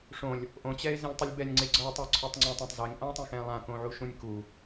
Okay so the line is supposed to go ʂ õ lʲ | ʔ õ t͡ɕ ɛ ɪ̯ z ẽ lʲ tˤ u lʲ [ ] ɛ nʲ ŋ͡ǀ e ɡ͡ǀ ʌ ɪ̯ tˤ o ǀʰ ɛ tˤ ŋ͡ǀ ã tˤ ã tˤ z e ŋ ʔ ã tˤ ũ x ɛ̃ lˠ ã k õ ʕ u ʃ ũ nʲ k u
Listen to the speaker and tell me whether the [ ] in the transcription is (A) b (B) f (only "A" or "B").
A